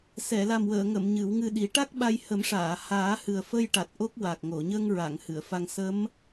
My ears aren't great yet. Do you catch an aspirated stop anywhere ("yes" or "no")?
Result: no